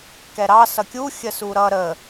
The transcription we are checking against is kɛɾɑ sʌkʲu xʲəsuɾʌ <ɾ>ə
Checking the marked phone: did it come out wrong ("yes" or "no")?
no